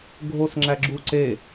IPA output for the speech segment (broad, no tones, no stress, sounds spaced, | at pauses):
ɡʱ o s ŋ͡ǁ æ ɡ͡ǁ u ǀ e